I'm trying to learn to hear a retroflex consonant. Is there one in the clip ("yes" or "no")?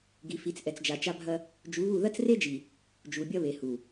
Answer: no